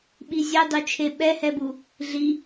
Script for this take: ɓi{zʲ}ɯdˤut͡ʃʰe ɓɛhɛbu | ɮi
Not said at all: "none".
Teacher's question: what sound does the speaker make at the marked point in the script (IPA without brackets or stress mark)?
zʲ